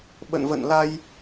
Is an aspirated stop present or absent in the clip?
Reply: absent